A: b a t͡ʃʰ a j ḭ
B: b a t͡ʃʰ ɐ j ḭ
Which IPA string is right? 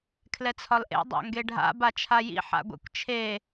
A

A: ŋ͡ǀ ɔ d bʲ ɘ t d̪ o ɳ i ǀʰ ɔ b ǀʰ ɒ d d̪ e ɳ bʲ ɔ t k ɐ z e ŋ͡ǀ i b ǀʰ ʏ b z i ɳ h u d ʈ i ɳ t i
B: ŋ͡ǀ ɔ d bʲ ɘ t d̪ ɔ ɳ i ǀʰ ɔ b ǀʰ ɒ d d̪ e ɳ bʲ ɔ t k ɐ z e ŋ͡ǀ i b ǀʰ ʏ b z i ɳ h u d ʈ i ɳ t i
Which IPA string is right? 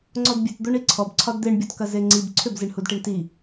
A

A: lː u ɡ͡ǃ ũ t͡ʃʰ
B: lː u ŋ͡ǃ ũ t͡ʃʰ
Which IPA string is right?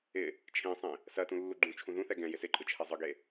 A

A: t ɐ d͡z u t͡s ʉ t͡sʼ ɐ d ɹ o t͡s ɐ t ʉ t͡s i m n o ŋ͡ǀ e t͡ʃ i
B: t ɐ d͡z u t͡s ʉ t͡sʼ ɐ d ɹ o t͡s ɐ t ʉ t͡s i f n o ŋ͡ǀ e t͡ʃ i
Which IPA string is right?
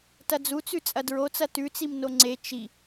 A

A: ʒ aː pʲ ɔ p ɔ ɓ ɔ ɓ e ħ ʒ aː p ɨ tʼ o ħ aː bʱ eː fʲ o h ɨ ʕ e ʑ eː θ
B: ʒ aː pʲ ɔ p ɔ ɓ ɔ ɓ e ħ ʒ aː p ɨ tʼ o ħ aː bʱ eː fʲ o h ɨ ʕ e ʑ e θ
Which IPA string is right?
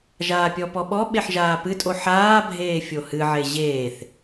A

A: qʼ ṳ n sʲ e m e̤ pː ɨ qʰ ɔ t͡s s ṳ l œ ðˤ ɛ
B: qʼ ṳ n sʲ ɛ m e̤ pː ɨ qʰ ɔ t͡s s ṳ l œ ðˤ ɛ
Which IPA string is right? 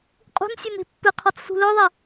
A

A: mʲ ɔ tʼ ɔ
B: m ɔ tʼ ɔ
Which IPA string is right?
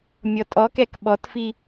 A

